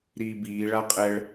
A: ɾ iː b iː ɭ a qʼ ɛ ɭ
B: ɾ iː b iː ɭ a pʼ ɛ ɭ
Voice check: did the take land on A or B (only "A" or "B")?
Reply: A